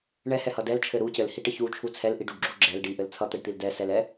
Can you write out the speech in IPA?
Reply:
ɳ ɛ h ɛ h ʌ d ɛ l t͡ʃʰ ɘ ɾ u c ɘ l h i ʈ ɘ ç u t͡ʃʰ u t͡sʰ ɛ l ʔ i ɖ u ɖ ɡ͡ǁ u ɡ͡ǁ ɛ l ɖ i ʔ ɘ l t͡sʰ ʌ t̪ ɛ ɖ t̪ i l d ɛ s ɛ l ɛ

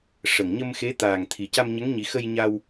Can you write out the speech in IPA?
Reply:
ʂ ə˨˩ ŋ ɲ ə˧ m x e˧˥ t̪ aː˨˩ ŋ t̪ʰ i˨˩ c a˧ m ɲ ə˧˥ ŋ ɲ i˨˩˦ x ə˧ j ɲ a˧ w

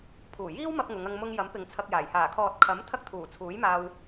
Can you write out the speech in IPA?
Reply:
pʰ uː˨˩ j iː˥ w m ɐ˧ p̚ ŋ ʊ˨˧ ŋ ɐ˧ ŋ m ʊ˧ ŋ j ɐ˨˥ m p ɪ˨ ŋ t͡sʰ ɐ˧ k̚ j aː˨˩ j h aː˨˩ kʰ ɔː˨ t̚ kʰ ɐ˨˥ m t̪ʰ ɐ˥ k̚ t̪ʰ uː˨˩ t͡sʰ uː˨˥ j m aː˧ w

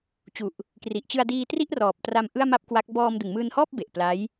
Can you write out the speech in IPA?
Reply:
t͡ɕ u˨˩ ʔ | k r i˨˩ ʔ t͡ɕ ɯ˧ a̯ d iː˧ t r i˥˩ ʔ r ɔː˨˩ p̚ t r a˧ m ʔ ɯ˥˩ a̯ m a˥˩ p̚ k w a˦˥ k̚ b ɔː˧ m d ɯ˩˦ ŋ m ɯː˧ n h ɔː˥˩ p̚ b e˨˩ ʔ p l a˦˥ j

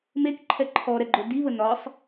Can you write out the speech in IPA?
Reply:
m e k ǃʰ ɛ ǃʰ ɔ ɾ ɛ ɡ͡ǃ ɵ d i β ə n ɒ sˤ

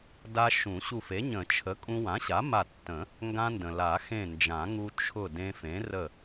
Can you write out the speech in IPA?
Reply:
d a˧ ʃ ũ˨˩˦ ɕ u˧˩ f e˩˥ ɲ ə̃˨˩˦ t͡ʃʰ ə˩˥ kʼ ũ˧ w ã˩˥ ɕ a˩˥ m a˧˩ tː ə̃˨˩˦ | ŋ ɡ ã˧ n d ə̃˩ l a˨˩˦ x ẽ˧˩ n d͡ʒ ã˨˩˦ ŋ u˧ t͡ʃʰ ʊ˧˩ d ẽ˧ f ẽ˩˥ r ə˧˩

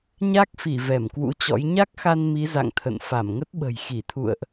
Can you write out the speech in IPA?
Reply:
ɲ a˦˥ k̚ f i˧˩ v ɛ˧˩ m k w ṵ˧˥ t͡ɕ ɔ̰˧˥ j ɲ a˦˥ k̚ x a˧ n m i˨˦ z a̰˧˨ ŋ t̪ʰ ə̰˧˨ n f a˧˩ m ŋ ə˦˥ t̚ ɓ ə̤˨˩ j x i˧˩ t̪ʰ ṵ˧˨ ə̯ ʔ

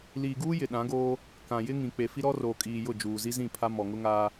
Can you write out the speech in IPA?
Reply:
l iː˨ ɡ uː˦ j ɪ˨ ɗ ã˨˦ ɡ oː˦ | k ã˨ j ɪ˦ ŋ ĩ˨ k͡p e˨ f i˦ ɾ ɔ˦ r oː˨ kʼ iː˨ j ʊ˦˨ d͡ʒ uː˨ z i˦ z ĩ˦˨ pʰ a˦ m ɔ˨ ŋ ʊ˦ ŋ aː˦

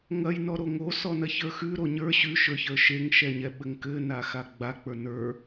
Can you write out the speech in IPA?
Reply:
ŋ ɐ j n ɔ ɾ o ŋ o s ɔ n ɐ ç ə˞ x ʉ ɾ o ɲ ə˞ ɕ ʉ ʃ ə˞ ç ə˞ ʃ e ŋ ʃ ɛ ɲ ɛ ɓ ɘ ŋ k ɘ n a x a ɡ͡b a k͡p ə˞ n ə˞

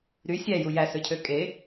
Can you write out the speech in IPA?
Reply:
ɾ y sʲ æ j u j æ s ø cʰ ø kʼ e

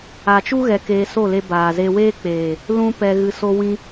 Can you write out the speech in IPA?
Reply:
a˨ t͡ʃ u˦ ɣ ɛ˧ k eː˧ s o˦˨ l e˧ b aː˨ z e˧ w eː˦ k͡p eː˨ | l ũ˦ p ɛ˧ ɣ ɨ˧ s o˧ w ĩ˧

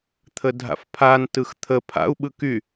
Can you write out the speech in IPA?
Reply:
t̪ʰ ə dʱ a̰ f pʰ a n t ɯ x t̪ʰ ə pʰ a̰ u̯ ɓ ɯ k y

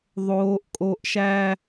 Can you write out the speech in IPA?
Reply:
ðˤ oː˦ ʔ kʼ o˦ ʔ ʃ æ˦

